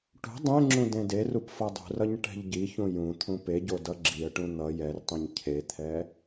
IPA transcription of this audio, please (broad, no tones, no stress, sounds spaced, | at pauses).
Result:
ʈ ṳ dˤ ẽ ŋ͡ǁ ũ d ẽ d e r u p f ʌ dˤ ṳ r ʌ ɲ ʈ ɛ̤ ʎ ɟ i ç ũ j ũ t̪ʰ ũ p e ɟ o d ʌ ɡ͡ǁ i ə̯ ʈ ũ n̪ ʌ j ɛ r tˤ ĩ ɲ cʰ e t̪ʰ ɛ